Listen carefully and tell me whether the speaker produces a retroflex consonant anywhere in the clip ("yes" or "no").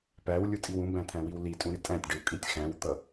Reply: yes